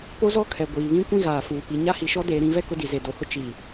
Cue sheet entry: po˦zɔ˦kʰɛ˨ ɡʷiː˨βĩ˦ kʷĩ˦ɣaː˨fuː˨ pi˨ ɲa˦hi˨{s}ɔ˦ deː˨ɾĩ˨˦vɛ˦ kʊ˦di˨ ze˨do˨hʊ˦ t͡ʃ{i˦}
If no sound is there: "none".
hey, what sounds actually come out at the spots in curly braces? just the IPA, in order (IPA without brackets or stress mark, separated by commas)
ʃ, i˨